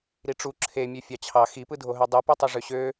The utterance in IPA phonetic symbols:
ɾ i ʈ͡ʂ u ǁʰ e mʲ ø fʲ ɑ t͡ɕʰ ɑ x i p ɯ dʱ o ɦ ø dˤ ɯ p y tˤ ɯ ʐ ø ɕ ø

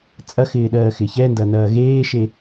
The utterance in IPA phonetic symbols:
t͡sʼ ɐ x ɪː ɗ ɜː x ɪ ç ɛ n d ɐ n ɐː ɣ eː ʃ e

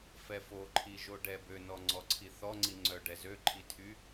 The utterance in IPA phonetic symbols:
f ɛ f o ǃʰ i ʒ o ɖ ɛ b ø n ɔ ŋ͡ǀ ɔ ǀʰ i θ ɔ ŋ͡ǀ i ŋ͡ǀ œ ɖ ɛ z ø ǃʰ i tʰ y

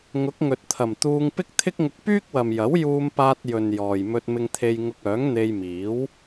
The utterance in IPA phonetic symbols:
ŋ ʊ˨˥ k̚ ŋ ɵ˨ t̚ t̪ʰ ɐ˨˩ m t̪ uː˧ ŋ p ɪ˥ k̚ t̪ʰ ɪ˥ k̚ ŋ ʊ˧ k̚ p yː˥ k̚ w ɐ˨ m j ɐ˨˥ w j uː˧ m p aː˧ t̚ j ɵ˨ n j ɔː˨ j m ɵ˧ t̚ m ɪ˧ ŋ t̪ʰ e˧ j ŋ ʊ˧ k̚ œː˨˥ ŋ n̪ e˧ j m iː˨˥ w

